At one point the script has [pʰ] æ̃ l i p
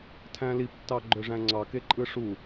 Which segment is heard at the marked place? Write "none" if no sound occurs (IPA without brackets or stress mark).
tʰ